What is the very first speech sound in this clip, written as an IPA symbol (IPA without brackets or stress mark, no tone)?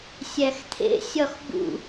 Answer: sʲ